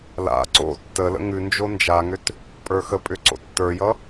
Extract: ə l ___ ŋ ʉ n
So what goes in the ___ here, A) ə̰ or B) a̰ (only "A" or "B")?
A